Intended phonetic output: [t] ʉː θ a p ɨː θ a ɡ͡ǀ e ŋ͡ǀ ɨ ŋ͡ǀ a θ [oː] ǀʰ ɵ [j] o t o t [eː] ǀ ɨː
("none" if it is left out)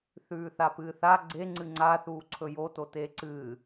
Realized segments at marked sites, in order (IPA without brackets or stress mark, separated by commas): θ, uː, j, eː